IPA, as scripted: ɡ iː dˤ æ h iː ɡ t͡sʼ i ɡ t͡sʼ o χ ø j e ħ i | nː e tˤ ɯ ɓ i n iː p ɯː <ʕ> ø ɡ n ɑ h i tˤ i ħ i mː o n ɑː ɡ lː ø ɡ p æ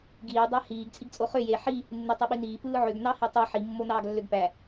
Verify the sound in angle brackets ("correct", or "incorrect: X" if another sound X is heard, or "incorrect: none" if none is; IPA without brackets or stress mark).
correct